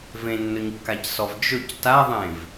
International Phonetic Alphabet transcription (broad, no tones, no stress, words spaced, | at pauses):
vẽnːɵɲkːacsɔv d͡ʒɵc taðˤẽv